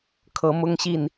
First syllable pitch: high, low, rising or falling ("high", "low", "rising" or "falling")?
rising